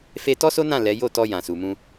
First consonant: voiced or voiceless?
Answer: voiceless